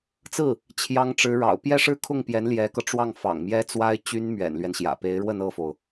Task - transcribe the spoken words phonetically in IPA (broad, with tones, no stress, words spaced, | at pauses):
t͡sɹ̩˥˩ | t͡ɕʰjɑ˥ŋʈ͡ʂɻ̩˧˥ɻɑ̰˨˩ʊ̯ pjɛ˥˧ʂɻ̩˥˧kʰʊ˥˩ŋpjɛ˧˥n ljɛ˧˥kɤ˧ʈ͡ʂwɑ˥˩ŋ fɑ̰˨˩ŋ mjɛ˥t͡swa˥ɪ̯ t͡ɕy˥nmɥɛ̰˨˩nlɥɛ˦nɕjä̰˨˩ pe˧˥ɪ̯ɻwə˥˧n ɤ˥˩fo˩ʊ̯